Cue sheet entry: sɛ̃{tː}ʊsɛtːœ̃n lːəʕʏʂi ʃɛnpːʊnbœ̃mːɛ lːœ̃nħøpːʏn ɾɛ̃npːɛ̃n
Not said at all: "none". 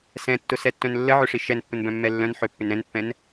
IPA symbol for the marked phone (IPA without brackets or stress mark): tː